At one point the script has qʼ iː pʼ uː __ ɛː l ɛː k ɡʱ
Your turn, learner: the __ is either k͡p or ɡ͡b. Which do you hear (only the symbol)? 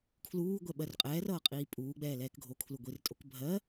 ɡ͡b